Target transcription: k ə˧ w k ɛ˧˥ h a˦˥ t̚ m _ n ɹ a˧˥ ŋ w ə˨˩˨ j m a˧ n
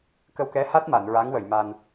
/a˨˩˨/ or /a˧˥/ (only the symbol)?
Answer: a˨˩˨